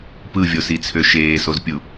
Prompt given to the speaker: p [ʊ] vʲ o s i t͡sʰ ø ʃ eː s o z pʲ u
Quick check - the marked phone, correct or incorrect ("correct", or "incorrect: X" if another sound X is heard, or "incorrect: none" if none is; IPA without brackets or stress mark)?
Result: incorrect: ɯ